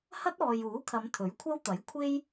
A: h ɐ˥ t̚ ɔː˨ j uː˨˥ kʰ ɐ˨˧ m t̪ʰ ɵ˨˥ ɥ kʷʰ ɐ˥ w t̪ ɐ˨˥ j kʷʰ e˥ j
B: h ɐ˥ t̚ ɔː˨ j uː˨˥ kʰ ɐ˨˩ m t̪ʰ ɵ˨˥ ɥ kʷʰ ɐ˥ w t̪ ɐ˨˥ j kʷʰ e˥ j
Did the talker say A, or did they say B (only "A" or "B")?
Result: A